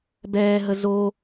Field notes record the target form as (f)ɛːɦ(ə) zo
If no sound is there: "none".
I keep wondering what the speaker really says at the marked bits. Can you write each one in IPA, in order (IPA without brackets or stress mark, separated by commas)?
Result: b, ə